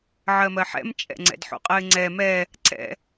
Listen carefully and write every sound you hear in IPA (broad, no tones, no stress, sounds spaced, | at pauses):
ʕ ɜ m ɜ ħ ɛ̰ m t͡ʃʼ ɛ̰ ŋ͡ǀ ɛ̰ d ħ o̰ qʼ ɜ ɪ̯ ŋ͡ǀ ɛ m ɛ | ǀ ɛ̰